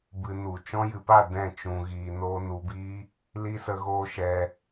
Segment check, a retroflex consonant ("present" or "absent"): absent